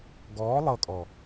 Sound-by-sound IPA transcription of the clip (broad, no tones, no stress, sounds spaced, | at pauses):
ɡ ɔː lˠ ɤ kʼ ɔ